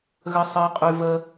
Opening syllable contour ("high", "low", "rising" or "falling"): high